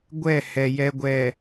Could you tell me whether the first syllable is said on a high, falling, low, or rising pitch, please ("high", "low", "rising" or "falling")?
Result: falling